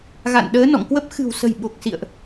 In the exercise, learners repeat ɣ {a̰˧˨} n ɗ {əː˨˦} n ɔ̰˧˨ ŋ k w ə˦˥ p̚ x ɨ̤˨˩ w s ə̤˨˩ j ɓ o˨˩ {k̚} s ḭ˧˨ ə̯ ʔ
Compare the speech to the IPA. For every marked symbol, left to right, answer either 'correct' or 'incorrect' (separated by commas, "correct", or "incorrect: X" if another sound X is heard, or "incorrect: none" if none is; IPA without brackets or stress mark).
correct, correct, correct